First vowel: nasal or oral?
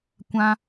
nasal